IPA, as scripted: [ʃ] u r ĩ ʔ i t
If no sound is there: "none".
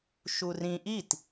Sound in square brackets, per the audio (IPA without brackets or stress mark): ʃ